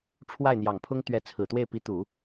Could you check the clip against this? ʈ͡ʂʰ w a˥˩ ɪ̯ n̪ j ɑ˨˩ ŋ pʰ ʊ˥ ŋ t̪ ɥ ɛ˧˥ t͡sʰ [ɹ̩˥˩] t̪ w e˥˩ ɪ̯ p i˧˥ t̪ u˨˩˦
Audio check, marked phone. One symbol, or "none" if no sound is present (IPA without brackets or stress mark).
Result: ɹ̩˨˩